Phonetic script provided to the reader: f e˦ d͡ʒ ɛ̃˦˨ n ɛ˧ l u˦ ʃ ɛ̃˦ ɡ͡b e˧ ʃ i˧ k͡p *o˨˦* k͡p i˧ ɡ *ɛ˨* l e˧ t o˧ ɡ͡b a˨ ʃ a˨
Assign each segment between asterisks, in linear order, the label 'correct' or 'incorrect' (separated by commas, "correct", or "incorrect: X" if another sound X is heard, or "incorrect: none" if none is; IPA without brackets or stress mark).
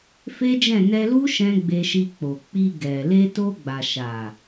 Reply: incorrect: o˨, correct